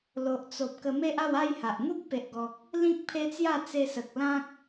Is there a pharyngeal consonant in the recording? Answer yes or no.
no